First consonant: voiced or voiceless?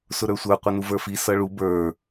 voiceless